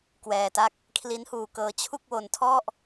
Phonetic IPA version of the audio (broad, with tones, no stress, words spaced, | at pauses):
kwɛː˧ta˥˩k̚ | kʰli˦˥nhuː˧kɤː˧ t͡ɕʰu˥˩k̚wo˧ntʰɔ˥˩ʔ